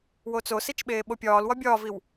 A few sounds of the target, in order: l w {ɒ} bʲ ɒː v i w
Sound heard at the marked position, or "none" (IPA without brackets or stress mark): ɒ